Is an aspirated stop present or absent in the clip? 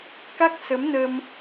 absent